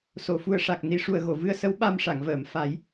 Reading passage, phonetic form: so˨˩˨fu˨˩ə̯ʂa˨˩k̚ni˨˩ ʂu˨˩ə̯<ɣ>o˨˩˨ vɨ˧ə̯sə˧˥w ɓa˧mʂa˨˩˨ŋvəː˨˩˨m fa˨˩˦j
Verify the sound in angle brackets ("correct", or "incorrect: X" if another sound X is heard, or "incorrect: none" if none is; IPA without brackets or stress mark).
correct